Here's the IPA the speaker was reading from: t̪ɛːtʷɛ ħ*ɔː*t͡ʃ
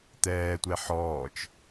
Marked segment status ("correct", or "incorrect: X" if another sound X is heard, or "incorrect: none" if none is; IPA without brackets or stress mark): correct